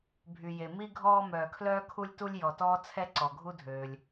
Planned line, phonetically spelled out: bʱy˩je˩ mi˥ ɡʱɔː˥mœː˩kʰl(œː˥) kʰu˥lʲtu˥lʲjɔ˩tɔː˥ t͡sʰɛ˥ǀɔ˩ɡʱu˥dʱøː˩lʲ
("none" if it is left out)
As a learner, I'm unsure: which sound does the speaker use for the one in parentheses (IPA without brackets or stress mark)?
œː˥